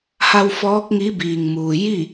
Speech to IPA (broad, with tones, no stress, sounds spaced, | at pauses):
h a˧ w f ɔː˧˥ k̚ ŋ i˧˥ b iː˩ ŋ m uː˩ j i˥˨